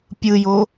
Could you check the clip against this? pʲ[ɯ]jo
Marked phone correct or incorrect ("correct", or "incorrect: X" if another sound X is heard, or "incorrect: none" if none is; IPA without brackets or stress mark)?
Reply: correct